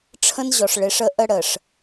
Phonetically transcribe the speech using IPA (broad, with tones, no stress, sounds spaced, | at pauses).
ʈ͡ʂʰ ə̃˦ n ʑ ɔ˨ ʂ ɭ ɪ˨˦ ʂ ə˦ ʔ ə˦ ɽ ə˨ ʂ